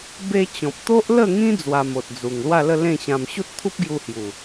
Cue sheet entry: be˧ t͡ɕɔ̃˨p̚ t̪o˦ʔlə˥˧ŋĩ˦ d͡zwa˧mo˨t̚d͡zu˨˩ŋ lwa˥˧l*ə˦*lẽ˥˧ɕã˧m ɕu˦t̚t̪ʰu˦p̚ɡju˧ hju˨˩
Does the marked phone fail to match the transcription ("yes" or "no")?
yes